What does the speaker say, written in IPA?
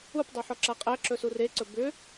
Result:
updˤɵħɔǁa qʼæǁɵ sureǀɵ bʏ

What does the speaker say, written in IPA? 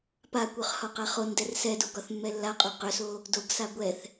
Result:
pakʷœχ hɒqaχondɛr sɛdo ɡɒθmːɛlːaqʼo qʏso | doɡsa ɡʷɛθ

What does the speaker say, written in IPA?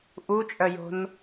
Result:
ʔut͡ʃʼœjo̤n

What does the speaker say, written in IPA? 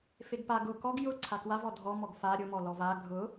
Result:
feɡpa ɡʊ kɔɡ jʊ ǀʰakwavɔ dʱɔ mɔɡfa ɾʲʊmɔ lɔva ɡʱʊ

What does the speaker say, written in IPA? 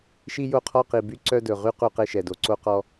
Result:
ʃi˦jo˦ qʰɔ˦qi˨by˦ ǀœ˦dɵ˨ʁy˦ qu˦˨qe˦ ʃɛ˨do˨ ǀo˦qɔ˦

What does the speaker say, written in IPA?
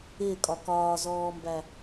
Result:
ɪːkʼɒ kɒːzɔːmbæ

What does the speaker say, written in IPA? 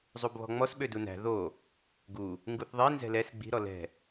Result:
zˤubβɔ̤ŋ͡mɔs ɓødunæ̤ ðo | ɡu | ŋɡuθðˤi nzɛ̤lɛs ɡ͡bi̤ ɾɔlɛ̤

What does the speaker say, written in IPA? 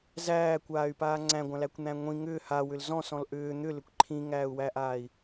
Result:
zæːkʷaːy̯paː ŋ͡ǀæ̃ɡʷãlækʷn̪æ̃ ŋʷĩ ŋʏː hawʏl zɔ̃sɔ̃l ʔʏː n̪ʏlʏkʷ ǃʰĩŋæːu̯wæʔaːi̯

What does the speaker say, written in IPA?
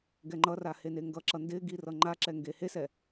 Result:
ɡɛŋ͡ǃʌra heneŋɡʌǁʌ ndɪɡi rʌŋ͡ǃaǁɛ ŋɡehesɛ

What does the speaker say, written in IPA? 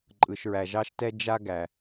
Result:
ǃʼɯ˩ʃɹæ˩ʒɑ˥ʃtɛ˥ d͡ʒa˥ɡæ˩

